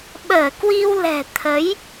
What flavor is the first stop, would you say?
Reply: implosive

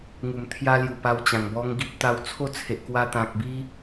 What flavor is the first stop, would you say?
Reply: aspirated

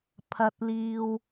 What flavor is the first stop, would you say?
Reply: aspirated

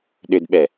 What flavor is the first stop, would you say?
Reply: implosive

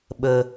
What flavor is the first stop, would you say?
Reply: implosive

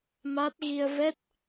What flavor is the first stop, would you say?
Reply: plain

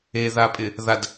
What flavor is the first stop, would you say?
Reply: ejective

